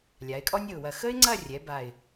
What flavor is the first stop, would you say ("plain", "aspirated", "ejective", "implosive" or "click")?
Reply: ejective